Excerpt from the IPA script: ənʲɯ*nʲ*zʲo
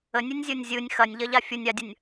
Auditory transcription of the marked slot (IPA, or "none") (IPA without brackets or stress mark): nʲ